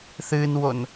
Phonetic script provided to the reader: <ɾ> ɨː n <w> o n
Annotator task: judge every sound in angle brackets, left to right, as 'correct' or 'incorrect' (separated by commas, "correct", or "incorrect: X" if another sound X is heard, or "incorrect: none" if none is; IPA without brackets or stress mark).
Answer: incorrect: θ, correct